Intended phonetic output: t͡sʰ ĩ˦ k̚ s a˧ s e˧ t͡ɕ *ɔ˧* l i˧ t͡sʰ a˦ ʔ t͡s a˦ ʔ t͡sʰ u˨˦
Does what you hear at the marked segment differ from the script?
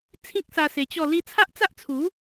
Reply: yes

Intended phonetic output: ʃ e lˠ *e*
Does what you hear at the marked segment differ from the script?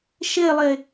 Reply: no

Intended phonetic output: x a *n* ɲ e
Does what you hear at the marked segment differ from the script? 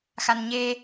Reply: no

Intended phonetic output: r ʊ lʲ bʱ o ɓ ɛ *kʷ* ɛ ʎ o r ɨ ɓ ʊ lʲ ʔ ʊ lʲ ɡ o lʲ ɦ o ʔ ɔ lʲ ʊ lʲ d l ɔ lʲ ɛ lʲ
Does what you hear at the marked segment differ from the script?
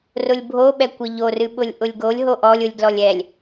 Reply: no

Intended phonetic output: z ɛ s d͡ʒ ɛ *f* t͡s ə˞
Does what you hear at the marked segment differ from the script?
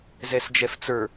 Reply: no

